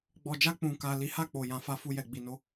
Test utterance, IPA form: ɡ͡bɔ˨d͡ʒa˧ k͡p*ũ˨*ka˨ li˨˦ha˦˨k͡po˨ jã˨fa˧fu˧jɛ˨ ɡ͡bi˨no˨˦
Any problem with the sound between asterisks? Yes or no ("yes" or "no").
no